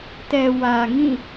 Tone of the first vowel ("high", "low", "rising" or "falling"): low